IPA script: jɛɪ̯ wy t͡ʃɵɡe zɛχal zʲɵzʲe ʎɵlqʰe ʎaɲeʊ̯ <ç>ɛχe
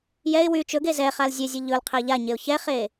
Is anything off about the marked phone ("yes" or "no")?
no